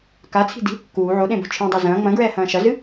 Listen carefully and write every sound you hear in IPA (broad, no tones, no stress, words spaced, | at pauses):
kat͡sʰi̤di̤ | kuː ʕoɗẽbo̤ t͡ʃʰẽdˤo zɐ̃ː ŋ͡mɐ̃ɡɹɛːhɐ̃ː ʃɐzɨ